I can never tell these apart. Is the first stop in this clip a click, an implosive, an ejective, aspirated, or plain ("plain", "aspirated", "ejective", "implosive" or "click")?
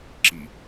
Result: click